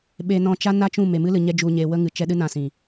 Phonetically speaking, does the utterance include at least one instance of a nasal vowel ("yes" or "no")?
yes